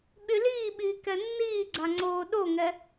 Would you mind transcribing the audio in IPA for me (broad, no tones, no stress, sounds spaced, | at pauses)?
ɓ y l iː ɓ iː k ɛ nː iː ɡ͡ǀ a ŋ͡ǀ oː ɗ o ŋ ɛ